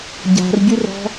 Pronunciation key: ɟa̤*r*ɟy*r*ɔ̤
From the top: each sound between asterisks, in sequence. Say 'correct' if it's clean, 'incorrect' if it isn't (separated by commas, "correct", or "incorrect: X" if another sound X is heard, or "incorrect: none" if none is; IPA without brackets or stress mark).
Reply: correct, correct